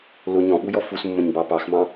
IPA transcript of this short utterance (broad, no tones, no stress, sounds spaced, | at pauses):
l ʊ ɲ ɔ̃ ɓ u j ɔ f u s mː ə̃ ɲ b ɑ p ɑ x m ɑ̃